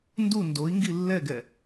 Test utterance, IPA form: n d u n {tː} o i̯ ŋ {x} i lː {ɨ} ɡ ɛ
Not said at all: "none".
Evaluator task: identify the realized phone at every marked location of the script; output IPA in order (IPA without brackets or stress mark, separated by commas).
d, ɡ, ɛ